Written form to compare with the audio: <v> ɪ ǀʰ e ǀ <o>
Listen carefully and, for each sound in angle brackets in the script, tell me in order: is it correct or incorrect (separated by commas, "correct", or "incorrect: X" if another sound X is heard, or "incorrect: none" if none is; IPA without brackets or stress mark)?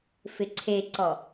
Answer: incorrect: f, incorrect: ɔ